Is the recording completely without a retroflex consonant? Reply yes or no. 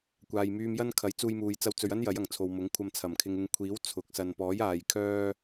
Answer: yes